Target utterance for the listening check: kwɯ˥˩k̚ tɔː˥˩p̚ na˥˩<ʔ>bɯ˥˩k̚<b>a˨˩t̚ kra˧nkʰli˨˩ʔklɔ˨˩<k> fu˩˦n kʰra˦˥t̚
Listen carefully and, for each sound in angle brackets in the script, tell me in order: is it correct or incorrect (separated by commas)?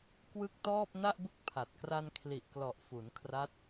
correct, incorrect, incorrect